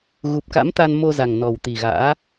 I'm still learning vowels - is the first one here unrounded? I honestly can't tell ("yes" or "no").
no